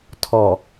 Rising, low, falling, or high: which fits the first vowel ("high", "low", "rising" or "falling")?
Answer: low